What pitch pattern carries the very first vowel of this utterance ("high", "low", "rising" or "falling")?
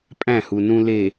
falling